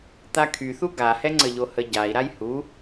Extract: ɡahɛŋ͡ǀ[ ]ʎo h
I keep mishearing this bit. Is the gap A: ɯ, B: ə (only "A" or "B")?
B